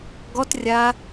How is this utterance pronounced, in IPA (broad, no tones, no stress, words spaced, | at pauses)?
ɡɔt rʲa